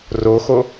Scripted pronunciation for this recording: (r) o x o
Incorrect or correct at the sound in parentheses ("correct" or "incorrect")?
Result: correct